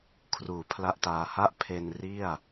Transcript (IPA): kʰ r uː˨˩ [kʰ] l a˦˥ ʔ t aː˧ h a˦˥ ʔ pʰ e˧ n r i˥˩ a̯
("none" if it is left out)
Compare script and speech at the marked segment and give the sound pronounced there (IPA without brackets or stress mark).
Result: pʰ